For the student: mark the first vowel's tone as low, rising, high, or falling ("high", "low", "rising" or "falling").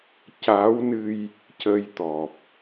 rising